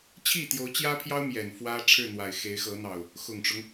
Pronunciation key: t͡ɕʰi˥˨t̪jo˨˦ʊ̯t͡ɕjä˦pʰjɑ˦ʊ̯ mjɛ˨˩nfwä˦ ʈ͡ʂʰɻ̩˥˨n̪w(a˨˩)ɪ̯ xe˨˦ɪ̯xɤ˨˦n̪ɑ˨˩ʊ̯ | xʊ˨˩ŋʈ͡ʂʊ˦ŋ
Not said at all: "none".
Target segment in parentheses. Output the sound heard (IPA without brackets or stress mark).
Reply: a˨˩